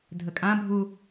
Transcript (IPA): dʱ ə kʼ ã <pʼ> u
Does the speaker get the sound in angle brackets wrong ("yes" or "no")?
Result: yes